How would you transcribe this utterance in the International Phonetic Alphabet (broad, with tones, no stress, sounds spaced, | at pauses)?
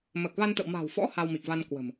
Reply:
m əː˨˩ k̚ v a˧ n t̪ ə̰˧˨ w m a̤˨˩ w f ɔ̰˧˥ h a˧ w m i˨˩ k̚ v a˧ n k w ə̤˨˩ m